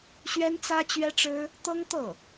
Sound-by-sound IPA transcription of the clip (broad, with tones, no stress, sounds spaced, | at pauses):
ɕ ɥ ɛ˥ n t͡s ä˥ t͡ɕ ɥ ɛ˥ ʈ͡ʂ ɻ̩˥ | t̪ ɤ˥ ŋ t̪ ɤ˥˩